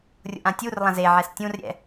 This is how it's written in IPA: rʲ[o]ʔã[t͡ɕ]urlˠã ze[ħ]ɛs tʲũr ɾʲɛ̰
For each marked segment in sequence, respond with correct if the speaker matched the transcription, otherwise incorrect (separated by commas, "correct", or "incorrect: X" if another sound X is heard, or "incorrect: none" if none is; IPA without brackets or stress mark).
incorrect: o̰, incorrect: tʲ, incorrect: ʕ